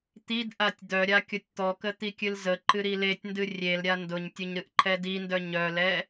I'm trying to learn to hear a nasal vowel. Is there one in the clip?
no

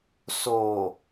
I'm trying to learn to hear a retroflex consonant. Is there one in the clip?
no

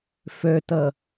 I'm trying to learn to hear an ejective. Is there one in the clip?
no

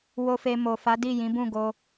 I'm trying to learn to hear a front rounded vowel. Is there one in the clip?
no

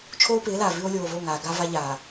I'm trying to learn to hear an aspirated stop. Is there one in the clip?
yes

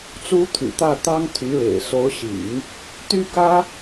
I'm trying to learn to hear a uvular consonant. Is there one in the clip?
no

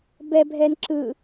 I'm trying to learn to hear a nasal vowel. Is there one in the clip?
no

